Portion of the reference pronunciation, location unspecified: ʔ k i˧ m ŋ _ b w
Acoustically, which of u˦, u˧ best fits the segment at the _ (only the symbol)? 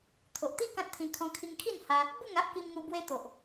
u˧